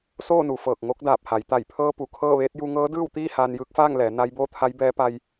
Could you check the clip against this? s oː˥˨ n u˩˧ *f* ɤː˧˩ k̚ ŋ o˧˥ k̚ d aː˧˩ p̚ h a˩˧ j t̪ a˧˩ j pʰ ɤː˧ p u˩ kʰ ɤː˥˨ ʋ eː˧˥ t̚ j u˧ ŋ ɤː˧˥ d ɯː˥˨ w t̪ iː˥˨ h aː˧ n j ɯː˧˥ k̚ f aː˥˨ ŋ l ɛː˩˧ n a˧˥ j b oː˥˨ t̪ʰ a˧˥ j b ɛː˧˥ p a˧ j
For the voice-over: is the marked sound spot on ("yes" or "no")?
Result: yes